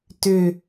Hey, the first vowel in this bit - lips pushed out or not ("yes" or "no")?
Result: yes